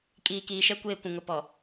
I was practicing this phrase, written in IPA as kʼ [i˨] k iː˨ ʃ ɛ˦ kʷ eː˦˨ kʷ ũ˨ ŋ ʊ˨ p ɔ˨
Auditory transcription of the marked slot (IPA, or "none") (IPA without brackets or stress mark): iː˨